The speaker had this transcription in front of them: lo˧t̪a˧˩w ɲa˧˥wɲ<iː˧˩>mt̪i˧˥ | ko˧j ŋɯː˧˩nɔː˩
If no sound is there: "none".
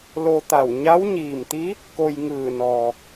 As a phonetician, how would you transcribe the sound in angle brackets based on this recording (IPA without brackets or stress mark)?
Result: iː˧˩